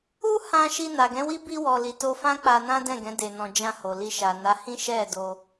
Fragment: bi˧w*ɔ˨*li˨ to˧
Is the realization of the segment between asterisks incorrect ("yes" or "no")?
no